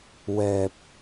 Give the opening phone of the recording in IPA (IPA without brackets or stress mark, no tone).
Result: w